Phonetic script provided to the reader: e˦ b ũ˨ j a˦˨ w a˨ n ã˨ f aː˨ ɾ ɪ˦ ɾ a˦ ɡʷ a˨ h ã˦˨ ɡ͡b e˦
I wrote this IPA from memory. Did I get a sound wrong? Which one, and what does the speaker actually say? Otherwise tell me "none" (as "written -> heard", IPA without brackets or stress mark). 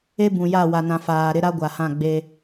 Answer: none